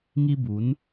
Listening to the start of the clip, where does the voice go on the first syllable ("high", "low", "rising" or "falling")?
high